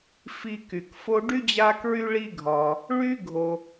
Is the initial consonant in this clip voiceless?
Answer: yes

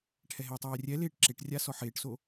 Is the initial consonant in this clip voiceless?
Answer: yes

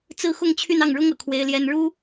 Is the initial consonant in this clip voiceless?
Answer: yes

